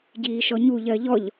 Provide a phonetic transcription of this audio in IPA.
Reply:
ɟ iː ʃ ɔ ɲ u ʎ ɜ ʎ ɔ ʎ

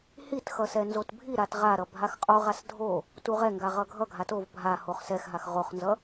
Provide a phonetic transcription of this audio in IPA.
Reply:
h i t x ʌ s ɛ n z o t bʱ i ɾ a t ʁ a ɾ ʌ bʱ a x qʼ o ʁ a s dʱ o | t u ʁ ɛ ŋ ɡ a ʁ ʌ ɡʱ ʌ ɡʱ a t o v bʱ a h o χ s ɛ x ɦ a x ʁ o χ n z ʌ

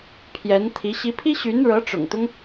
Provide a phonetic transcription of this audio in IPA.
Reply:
pʰ j ɛ˧˥ n t̪ʰ i˧˥ ɕ i˧˥ pʰ i˥ ɕ y˧˥ n ɻ ɤ˧˥ ʈ͡ʂ ʊ̰˨˩ ŋ t̪ ʊ˦ ŋ

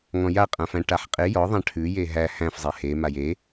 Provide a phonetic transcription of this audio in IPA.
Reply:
ŋ ɔ̃ j a qʼ ã f æ̃ ʈ a ħ qʼ e j ɔ ðˤ ã ʈʰ ʉ j e ɦ æ h æ̃ f zˤ e h e m a j e

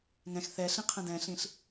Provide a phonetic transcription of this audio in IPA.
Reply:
ŋ ɛ̃ x θ ɛ ɬ ĩ qʰ ə̃ d ɛ̃ ɬ ĩ ɬ

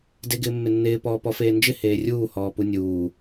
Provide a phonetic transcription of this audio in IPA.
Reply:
d e ɡ ɪː mː ɪ nː ɪː p ɔː p ɔ f eː n d͡ʒ ɪ h eː rʲ uː h ɔː p u nʲ uː

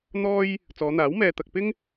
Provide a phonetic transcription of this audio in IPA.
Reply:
n̪ ɔː˥ j | t͡s ɔː˨˧ n̪ aː˨˥ w m ɛː˧ t̪ ɐ˧ k̚ p ɪ˥ ŋ

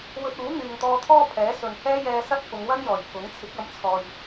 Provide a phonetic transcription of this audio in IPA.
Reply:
w ɵ˧ t̚ uː˨˥ n̪ yː˨ ŋ t̪ ɔː˧ t̪ʰ ɔː˥ pʰ ɛː˨˥ s ɵ˨ n h ɛː˥ j ɛː˧ s ɐ˥ t̚ f ʊ˨˧ ŋ w ɐ˥ n j ɔː˨˩ j pʰ ʊ˨˥ ŋ t͡sʰ ɪ˨˥ k̚ ɐ˨˥ m t͡sʰ ɔː˨ j

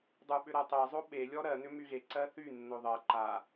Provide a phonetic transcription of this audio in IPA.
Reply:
dˤ u ɓ ʏ ɾ ɜ tˤ e zˤ o ɓ e lʲ ɔ ɾ ɜ n ʏ m y ɣ e ǀ ɜ θ y nː o ðˤ ɜ ǃ a

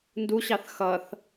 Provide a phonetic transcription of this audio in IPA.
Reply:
n d u ɕ ɑ θ x ʌ θ

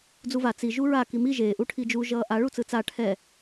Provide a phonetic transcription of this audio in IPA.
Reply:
d͡z u v a t͡s i ʒ u ɹ a k i m i ʒ eː ʔ u ʈʰ i d͡ʒ u ʒ ʌː ʔ a ɭ u t͡s ɯ t͡s a ʈʰ ɛ

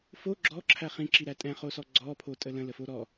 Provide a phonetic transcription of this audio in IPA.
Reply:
f o ɡ͡ǁ ɔ ǁʰ æ χ ĩ ǁ i ɾ æ tʼ ɛ̃ χ o s ɔ ɡ͡ǀ ɔ pʰ o tʼ ə l ə̃ l ə f o ɾ ɔ

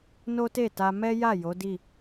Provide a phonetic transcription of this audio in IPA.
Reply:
n o˦ t e˦˨ t a˧ m ɛ˦ j a˦˨ j o˨˦ d i˦˨

